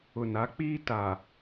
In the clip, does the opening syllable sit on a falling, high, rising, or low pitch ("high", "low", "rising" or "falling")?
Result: low